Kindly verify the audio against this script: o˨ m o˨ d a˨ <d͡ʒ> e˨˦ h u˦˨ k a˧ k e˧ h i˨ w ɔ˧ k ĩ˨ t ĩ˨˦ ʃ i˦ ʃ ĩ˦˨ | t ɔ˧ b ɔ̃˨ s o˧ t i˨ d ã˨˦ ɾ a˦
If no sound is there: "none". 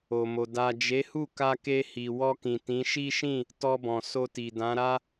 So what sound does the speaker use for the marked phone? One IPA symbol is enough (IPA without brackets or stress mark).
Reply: d͡ʒ